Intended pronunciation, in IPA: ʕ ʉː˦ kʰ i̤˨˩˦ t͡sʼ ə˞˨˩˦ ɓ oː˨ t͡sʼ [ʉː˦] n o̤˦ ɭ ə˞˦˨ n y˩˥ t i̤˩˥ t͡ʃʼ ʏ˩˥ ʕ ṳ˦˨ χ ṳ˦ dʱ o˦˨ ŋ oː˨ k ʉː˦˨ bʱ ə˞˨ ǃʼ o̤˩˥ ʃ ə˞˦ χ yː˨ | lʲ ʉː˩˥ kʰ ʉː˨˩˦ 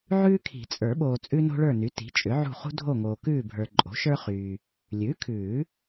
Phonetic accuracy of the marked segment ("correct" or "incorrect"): incorrect